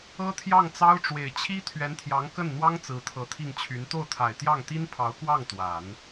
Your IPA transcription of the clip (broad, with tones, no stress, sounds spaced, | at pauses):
ɤ˥ t̪ʰ j ɑ˥˩ ŋ t͡s ɑ˥ ʊ̯ ʈ͡ʂ w e˨˩ ɪ̯ t͡ɕʰ i˥ t̪ʰ ɥ ɛ˧˥ n t̪ʰ j ɑ˧˥ ŋ k ə˥˩ n n̪ w ɑ˥ ŋ t͡s ɹ̩˧˥ t̪ʰ ɤ˧˥ t̪ʰ i˥˩ ŋ t͡ɕʰ y˧˥ n t̪ o˥˩ ʊ̯ t̪ʰ a˨˩ ɪ̯ t̪ j ɑ˥˩ ŋ t̪ i˥ n pʰ ɑ˧˥ ʊ̯ k w ɑ˥˩ ŋ t̪ w a˨˩˦ n